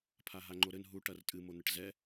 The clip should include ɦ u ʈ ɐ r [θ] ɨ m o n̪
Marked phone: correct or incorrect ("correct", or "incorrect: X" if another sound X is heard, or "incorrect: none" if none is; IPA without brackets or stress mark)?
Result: incorrect: tʼ